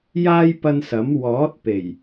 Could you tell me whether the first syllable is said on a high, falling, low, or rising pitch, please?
high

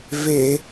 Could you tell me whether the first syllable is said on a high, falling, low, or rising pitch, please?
low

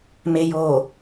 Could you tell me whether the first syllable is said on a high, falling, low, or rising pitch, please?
low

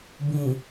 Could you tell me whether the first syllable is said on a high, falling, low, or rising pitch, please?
low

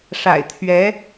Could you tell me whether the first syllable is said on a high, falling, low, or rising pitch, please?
low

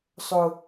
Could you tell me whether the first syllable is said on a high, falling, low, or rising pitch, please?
high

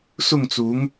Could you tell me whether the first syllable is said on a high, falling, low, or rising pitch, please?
falling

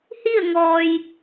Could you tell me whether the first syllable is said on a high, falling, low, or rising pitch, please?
falling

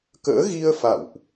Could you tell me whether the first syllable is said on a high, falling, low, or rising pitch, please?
rising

